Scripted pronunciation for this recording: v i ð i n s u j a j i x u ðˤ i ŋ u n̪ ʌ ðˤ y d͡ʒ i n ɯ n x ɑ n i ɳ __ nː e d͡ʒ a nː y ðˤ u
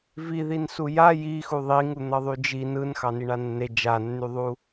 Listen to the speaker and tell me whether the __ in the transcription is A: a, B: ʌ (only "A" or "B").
A